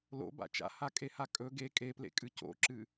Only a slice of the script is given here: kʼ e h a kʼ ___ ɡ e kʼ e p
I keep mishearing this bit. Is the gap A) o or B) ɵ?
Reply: B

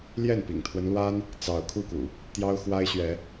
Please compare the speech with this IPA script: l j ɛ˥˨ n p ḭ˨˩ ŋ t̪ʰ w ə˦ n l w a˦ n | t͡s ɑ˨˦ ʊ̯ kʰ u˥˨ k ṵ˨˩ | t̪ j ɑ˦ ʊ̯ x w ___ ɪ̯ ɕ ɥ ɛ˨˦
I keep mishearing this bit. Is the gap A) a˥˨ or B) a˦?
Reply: B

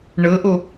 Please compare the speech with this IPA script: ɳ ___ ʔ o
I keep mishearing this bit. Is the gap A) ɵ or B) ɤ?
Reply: B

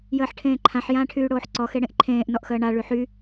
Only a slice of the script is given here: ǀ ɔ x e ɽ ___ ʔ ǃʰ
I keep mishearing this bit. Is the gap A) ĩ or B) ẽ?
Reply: B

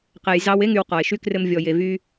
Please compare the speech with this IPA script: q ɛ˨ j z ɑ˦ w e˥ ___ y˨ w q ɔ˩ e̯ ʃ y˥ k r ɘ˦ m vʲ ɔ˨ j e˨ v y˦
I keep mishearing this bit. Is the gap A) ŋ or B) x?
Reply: A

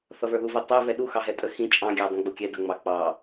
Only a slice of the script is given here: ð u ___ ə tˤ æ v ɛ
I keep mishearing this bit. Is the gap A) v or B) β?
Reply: A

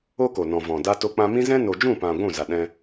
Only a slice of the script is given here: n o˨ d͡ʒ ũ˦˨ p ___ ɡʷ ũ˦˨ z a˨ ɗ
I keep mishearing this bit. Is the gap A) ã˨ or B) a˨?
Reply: A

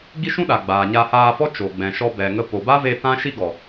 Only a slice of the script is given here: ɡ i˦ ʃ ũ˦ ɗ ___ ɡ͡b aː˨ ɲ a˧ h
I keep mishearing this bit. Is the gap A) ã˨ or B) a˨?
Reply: B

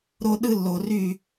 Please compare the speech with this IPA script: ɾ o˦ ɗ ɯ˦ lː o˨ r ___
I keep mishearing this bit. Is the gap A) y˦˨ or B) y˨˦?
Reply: A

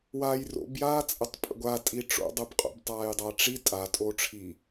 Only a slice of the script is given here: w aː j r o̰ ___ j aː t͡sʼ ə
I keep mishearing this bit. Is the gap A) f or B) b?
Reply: B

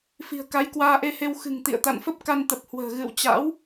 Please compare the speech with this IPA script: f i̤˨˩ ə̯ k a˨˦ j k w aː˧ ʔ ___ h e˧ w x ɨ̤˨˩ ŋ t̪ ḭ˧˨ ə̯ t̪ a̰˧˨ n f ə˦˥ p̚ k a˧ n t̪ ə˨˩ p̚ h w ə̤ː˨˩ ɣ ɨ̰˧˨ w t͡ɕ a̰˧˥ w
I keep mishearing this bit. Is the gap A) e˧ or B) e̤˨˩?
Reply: A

